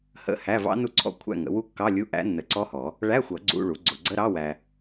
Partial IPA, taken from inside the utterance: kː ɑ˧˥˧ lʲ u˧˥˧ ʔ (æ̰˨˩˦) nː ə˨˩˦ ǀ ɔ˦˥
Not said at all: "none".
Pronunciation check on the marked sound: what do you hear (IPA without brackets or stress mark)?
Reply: æ̰˦˥